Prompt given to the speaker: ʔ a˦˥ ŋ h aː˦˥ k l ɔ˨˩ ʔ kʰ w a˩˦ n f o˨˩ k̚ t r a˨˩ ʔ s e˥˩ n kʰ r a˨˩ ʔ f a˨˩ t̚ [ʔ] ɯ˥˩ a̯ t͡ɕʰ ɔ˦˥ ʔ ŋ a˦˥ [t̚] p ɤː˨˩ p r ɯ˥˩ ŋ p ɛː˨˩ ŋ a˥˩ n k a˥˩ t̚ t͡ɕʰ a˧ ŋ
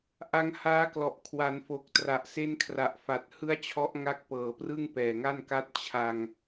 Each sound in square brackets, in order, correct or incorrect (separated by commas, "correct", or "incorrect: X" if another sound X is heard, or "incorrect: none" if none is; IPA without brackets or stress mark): incorrect: h, incorrect: k̚